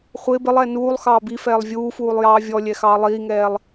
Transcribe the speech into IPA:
χʷɪː bɪlˠɛː nuːlˠ xɑːbifɛːlˠ vʲuːfuːlˠ jɑːvʲɔlʲɛ xɑːlˠiːŋɛːlˠ

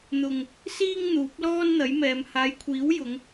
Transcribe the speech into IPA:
n̪ʊ˨ŋ | siː˥ŋn̪uː˨˥p̚lɔː˥n n̪ɐ˨˥jmɛː˨˧m haː˨˧jkʷʰiː˨˥wjʊ˨˧ŋ

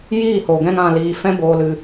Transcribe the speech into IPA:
jiː˦˨ho˨ɡɛ̃˧ŋ ã˨liː˨ fɛ̃˧boː˨lɨ˨

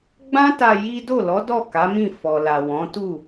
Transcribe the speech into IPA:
ɡ͡bã˦ta˧ ji˦ do˦˨lɔ˨˦dɔ˦˨ ka˨˦mĩ˦˨ fɔ˨la˨wɔ̃˨˦ tu˦˨

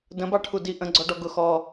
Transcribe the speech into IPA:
də̃bɑʈʰudi ʔə̃ɡ͡ǀɔɖɔ ɡʊ xɔ

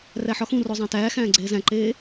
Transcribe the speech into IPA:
ræħɒxũro zˤæ̃tæːxæ̃ː ɡ͡ǀeːzæ̃ǃeː

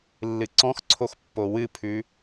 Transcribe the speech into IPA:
lːɨǀɔ̃xǀʰox pːowɨpʰʉ

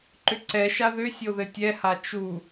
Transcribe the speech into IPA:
ǃʏǀɛʃa ðʏsʲo ðɘtʲɛha t͡ʃu

